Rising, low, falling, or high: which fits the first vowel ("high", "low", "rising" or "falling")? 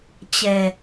low